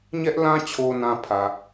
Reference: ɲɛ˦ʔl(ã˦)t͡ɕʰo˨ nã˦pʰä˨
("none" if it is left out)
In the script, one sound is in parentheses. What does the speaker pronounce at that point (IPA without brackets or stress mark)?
ã˦